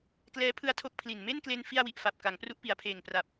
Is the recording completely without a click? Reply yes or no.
yes